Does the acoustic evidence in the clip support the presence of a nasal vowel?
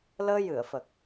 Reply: no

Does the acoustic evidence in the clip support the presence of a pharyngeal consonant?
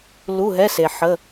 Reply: yes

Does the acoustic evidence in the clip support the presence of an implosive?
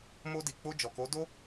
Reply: no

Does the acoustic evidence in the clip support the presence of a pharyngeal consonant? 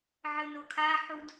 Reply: yes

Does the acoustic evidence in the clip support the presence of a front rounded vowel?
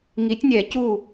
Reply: no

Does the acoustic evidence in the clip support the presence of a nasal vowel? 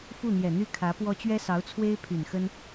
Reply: no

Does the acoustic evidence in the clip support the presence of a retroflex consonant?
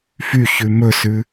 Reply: no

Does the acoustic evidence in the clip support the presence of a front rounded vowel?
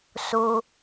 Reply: no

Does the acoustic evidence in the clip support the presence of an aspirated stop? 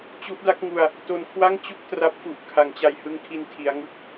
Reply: yes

